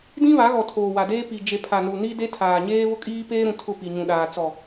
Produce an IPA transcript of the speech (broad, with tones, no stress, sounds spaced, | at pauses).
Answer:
d ĩ˦ β a˨˦ ɣ ɔ˨ tʰ oː˨ w a˨ d eː˦ p i˨ d͡ʒ e˨ pʰ a˨ n u˨ n i˦ d e˦ tʰ aː˨ ɲ eː˦ β ʊ˦ kʼ iː˦ p eː˦ ɾ ũ˨ tʰ ʊ˦˨ p i˨ ɲ ũ˨ ɗ aː˨ t͡s ɔ˨